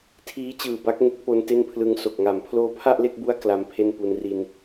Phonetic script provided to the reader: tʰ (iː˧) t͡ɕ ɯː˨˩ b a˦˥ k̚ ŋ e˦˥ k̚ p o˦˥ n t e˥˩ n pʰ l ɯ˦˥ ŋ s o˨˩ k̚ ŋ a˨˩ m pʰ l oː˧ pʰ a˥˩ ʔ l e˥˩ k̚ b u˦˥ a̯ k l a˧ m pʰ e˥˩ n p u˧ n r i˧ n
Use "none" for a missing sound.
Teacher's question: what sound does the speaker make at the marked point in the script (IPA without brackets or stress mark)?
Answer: iː˦˥